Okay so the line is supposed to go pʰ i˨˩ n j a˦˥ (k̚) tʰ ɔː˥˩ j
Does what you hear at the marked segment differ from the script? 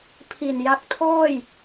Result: no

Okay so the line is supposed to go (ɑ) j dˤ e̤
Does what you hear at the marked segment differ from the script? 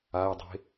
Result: yes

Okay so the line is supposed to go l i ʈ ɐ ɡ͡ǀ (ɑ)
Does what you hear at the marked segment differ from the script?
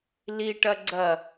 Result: yes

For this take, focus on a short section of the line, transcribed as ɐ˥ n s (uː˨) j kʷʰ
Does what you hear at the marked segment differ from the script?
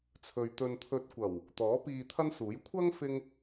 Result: yes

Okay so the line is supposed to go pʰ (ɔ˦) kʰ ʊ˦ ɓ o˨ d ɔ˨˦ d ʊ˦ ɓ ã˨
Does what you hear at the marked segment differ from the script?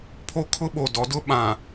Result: yes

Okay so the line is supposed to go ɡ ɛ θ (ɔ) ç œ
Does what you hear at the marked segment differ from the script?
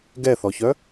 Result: no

